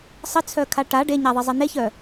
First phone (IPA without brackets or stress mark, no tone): sˤ